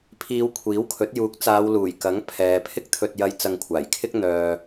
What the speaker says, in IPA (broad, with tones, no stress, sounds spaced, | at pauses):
pʰ iː˨˧ w kʷʰ iː˨˥ w kʰ ɵ˨˥ t̚ j uː˨˥ k̚ t͡s aː˨˧ w l uː˨˩ j k ɐ˨˥ ŋ pʰ ɛː˨ pʰ ɪ˥ k̚ t̪ʰ ɵ˧ t̚ j ɐ˧ j t͡s ɐ˧ ŋ kʷʰ aː˨˩ j kʰ ɪ˥ k̚ n̪ œː˨